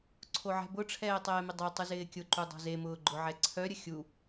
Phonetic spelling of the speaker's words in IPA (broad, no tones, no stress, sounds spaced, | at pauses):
ǀʰ o ʕ ɛ̤ b ʊ ʈ͡ʂʰ ɛː tˤ ɛː m ɪ dˤ œ tˤ u z ɪː kʲ ʊ ǃ u dˤ o̤ z e m ʊː ɡ͡ǃ ʊ ʕ ɛ ǀʰ œ ɾʲ ə xʲ u